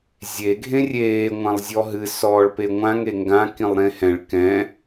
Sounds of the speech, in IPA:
zʲ e ɡʱ ẽ rʲ eː ŋʷ ã lˠ zʲ ɔ ɦ ɨ s ɔː ɭ p e ŋʷ ã ŋ e ŋ ɡ ã k ĩ lˠ ɾ ẽ h ɛ̃ ɭ k ɛ̃

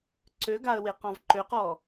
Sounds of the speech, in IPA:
ǀ ø ɡ a ə̯ w e q ɔ̃ v ǃ ø q ɔ

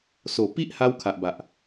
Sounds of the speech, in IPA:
s o˨˩ p i˦ ʔ h a˧ w kʰ a˨ ʔ b a˨ ʔ

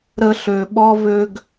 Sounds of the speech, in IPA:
ɾ ə˦ ɬ ø˧ ɓ ɔ˦ v ø˧ ɡ

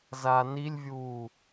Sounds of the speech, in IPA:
z a n i lʲ vʲ uː

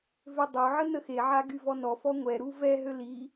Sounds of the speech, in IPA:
v ø dˤ o ʕ ə n ə x e ʕ a ɡ y v ɔ n ɔ f ɔ ŋʷ ɛ ɾ u v ɛ ɦ ø l i

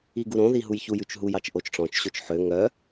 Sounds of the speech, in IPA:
i ɡ u ɾ õ ð i ɦ u j ç u j ʉ t͡ʃ ɦ u j ɑ t͡ʃ ʔ o t͡ʃ ʈ͡ʂ ɔ̃ t͡ʃ ɕ o t͡ʃ ħ ø ŋ œ

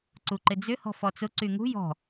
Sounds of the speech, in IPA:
ǀ u ǃ ɪ d͡z ʏ h ɔ̤ f ɔ t͡s ʊ ǀ y ŋ ṳ j ɔ̤

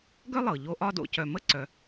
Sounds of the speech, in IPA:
ɡ œ˥ lˠ ɤ˩ ʎ o˦ ʔ ɒ˥ d o̰˨ c œ˨ m ə˥ ǀ œ˨

